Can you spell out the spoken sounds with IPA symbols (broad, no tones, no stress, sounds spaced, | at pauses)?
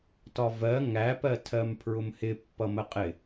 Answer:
t ɒ v ɜ ŋ æ p ɜ tʰ ɜ m pʰ ɹ ʊ m h ɪ pː ʌ m ə qʼ ɪ